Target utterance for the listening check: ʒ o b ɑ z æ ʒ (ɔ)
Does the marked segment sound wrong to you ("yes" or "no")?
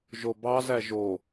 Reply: yes